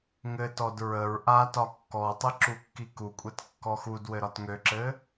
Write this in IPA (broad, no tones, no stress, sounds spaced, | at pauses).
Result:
ŋ ɘ t ɔ d ɹ ə ɹ ʔ a t ɒ kː ɔ tˤ ɘ ǁ u kː i k u kʷʼ ɛ t kː ɔ x u d w ɘ ɾ ɒ t ŋ ø ǁ ɘ